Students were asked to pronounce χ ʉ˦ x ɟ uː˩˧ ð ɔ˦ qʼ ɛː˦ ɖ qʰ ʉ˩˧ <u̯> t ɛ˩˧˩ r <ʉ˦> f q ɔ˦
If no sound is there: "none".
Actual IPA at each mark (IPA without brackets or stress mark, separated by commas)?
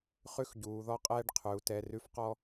u̯, ʉ˦